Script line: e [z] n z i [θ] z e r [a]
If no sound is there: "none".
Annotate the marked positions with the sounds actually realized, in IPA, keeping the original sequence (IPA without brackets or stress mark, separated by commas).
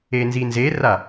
none, n, a